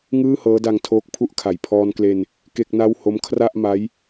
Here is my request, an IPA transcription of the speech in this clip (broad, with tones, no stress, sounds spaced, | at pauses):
ŋ ɯː˥˩ h ɤː˦˥ d a˧ ŋ tʰ oː˦˥ k̚ pʰ u˥˩ ʔ kʰ a˨˩ j pʰ ɔː˧ n k l e˧ n | k e˥˩ k̚ n a˥˩ w h o˦˥ m kʰ r a˥˩ ʔ m a˦˥ j